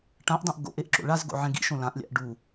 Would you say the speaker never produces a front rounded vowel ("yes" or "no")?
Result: yes